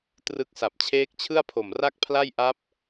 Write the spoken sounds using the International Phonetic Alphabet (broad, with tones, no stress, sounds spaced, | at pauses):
t r ɯ˦˥ k̚ s a˨˩ p̚ t͡ɕʰ eː˦˥ k̚ t͡ɕʰ ɯ˥˩ a̯ pʰ o˨˩ m r a˥˩ k̚ pʰ l a˥˩ j ʔ a˦˥ p̚